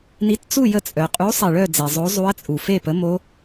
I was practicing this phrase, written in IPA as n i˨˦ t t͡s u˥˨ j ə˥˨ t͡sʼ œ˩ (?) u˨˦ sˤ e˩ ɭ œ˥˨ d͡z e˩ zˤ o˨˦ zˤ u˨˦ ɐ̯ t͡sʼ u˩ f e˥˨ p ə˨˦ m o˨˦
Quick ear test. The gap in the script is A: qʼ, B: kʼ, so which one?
A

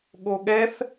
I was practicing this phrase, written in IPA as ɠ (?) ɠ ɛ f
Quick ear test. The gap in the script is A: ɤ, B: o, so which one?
B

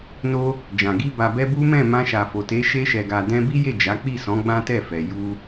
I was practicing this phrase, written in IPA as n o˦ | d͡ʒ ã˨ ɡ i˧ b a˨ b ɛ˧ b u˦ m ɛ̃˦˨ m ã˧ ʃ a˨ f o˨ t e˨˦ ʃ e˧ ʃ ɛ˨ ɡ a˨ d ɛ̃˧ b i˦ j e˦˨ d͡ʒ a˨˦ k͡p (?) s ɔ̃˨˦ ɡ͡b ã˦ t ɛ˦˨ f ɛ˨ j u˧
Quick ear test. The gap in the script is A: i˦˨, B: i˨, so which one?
A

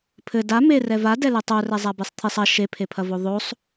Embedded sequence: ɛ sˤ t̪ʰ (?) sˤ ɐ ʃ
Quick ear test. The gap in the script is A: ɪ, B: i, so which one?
B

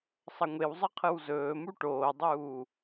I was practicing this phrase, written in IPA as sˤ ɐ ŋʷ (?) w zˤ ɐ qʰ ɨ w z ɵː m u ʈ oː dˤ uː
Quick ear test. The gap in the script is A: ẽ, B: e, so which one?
B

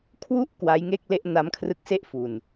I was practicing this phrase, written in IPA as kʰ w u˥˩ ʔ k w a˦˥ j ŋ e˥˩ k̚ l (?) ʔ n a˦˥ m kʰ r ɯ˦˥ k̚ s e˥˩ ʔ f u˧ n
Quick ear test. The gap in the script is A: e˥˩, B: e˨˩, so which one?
A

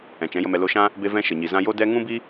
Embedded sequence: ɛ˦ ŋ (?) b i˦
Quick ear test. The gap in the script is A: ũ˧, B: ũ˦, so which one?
B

